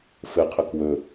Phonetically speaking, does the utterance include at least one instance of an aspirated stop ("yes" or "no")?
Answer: yes